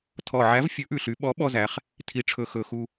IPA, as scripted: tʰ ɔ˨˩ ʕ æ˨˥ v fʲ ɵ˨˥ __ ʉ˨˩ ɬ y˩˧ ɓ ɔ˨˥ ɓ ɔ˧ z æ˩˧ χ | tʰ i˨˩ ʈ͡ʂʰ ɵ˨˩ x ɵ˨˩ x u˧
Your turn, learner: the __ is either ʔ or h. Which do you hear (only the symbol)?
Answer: ʔ